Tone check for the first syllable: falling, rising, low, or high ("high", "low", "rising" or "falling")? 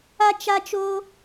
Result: high